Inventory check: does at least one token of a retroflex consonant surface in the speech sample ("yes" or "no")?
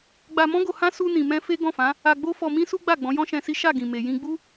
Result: no